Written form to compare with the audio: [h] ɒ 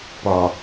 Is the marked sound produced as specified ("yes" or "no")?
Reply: no